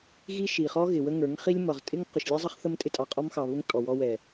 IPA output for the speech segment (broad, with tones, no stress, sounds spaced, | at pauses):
ɣ i˦ ʃ i˨ χ ɔ˦ ɣ ɪ˨ w ə˦ ŋ ə˞˨˦ ŋ χ i˦ lʲ m ʌ˨ ʁ tʼ ɪ˦ ŋ q ʊ˨ ʃ lʲ ɛ˦ zˤ ʌ˦ χ θ ə˦ m tʼ ɪ˦ tʼ ɑ˨ qʼ ɔ˦ m x ɑ˨ β ʊ˦ ŋ tʼ ɔ˨ w ɔ˦ w ɛ˨